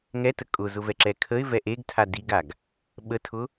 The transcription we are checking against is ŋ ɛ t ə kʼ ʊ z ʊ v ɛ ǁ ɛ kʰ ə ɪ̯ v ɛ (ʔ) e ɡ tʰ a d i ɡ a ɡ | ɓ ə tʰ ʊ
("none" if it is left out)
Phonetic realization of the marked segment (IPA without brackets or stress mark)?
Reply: ʔ